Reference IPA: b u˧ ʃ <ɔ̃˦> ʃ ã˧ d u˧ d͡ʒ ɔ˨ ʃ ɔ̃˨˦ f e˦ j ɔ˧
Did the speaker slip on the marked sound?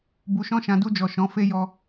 no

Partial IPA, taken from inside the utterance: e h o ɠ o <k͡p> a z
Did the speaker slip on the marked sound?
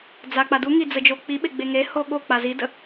no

